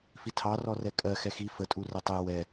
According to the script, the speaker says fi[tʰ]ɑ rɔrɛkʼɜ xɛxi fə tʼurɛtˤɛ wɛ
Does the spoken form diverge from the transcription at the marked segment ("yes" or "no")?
no